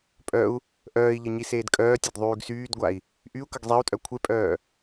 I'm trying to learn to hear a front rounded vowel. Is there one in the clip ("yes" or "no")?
yes